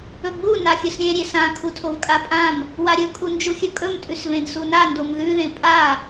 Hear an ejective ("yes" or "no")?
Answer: yes